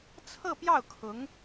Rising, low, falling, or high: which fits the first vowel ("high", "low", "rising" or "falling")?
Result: falling